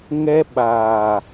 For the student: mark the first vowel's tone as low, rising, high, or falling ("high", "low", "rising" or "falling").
high